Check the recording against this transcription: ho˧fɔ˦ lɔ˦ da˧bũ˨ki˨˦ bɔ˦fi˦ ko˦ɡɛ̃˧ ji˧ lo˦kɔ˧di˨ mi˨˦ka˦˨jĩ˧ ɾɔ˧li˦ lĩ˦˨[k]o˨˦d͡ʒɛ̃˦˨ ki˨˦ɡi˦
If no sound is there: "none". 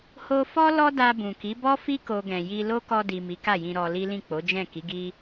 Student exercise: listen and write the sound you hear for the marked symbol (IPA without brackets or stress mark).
k͡p